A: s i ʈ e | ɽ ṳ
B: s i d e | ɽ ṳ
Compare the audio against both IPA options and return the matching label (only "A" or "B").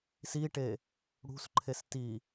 A